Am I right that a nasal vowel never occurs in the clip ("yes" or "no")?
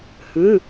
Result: no